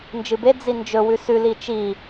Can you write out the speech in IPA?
n d͡ʒ ɨ b e d͡z i n d͡ʒ ɵ w ʉ s ʉ l i t͡ʃ i

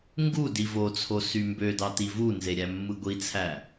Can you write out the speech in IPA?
ŋ ɡ u d i v o t͡sʰ o s y m b ø d ɑ t i v u n z e ɾʲ æ mː ɯ ɡʷ i t͡sʰ æ

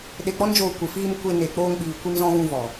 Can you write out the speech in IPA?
ɗ e˧ k͡p ɔ˦ n d͡ʒ oː˧ kʷ ɨ˨ f iː˧ m kʷ e˧ n e˨ k͡p oː˧ ŋ ɓ iː˨ kʷ i˧ m z ɔ̃˧ ɣ ũ˧ v ɔ˨

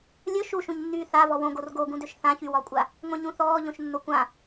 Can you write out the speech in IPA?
lʲ ɵ ʃ u ʃ ũ ɲ nː yː θ a v ɔ w õ ɡ o r ɡ o ɡ ũ d ø ʃ θ ã ç y w ɒ kʷʼ a | ŋʷ ẽ ɲ ũ θ ɔː ʎ õ ʃ nː o kʷ ã

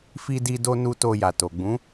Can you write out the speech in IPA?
f i˧ d i˧ d o˧ n u˦ t o˧ j a˨ t o˨ ɡ͡b ũ˨˦

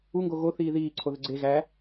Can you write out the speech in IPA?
u ŋ ɡ o ɣ o θ iː ð iː ǀʰ o ð ɘ ɡ͡ǀ e ɣ æ

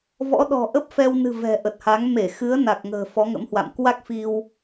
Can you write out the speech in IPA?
v ɔ̰˧˥ ɗ ɔ̤˨˩ ʔ ə˦˥ p̚ f ɛ˧ w n ɨ̤˨˩ v ɛ̤˨˩ ʔ ə˨˩ t̚ h a˨˦ ŋ m e˧˩ x ɨ˨˦ ə̯ n a˨˩ k̚ ŋ ə̤ː˨˩ f ɔ˨˦ ŋ ə̰˧˥ m h w a̰˧˨ m k w a˦˥ k̚ f i˧ w

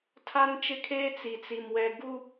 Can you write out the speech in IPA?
tʰ a˦ n t͡ʃ ɪ˦ kʰ eː˦ t͡s i˨ t͡s i˨ m w ɛ˨ ɡ u˦

